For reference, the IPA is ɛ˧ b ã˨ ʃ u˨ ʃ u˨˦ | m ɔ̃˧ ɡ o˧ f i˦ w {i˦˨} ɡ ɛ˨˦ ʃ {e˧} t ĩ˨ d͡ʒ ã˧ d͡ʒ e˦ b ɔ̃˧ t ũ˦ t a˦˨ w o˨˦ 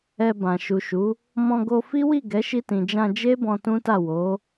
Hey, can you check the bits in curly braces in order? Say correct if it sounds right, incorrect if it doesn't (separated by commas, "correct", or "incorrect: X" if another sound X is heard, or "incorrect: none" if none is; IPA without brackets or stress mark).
correct, incorrect: i˧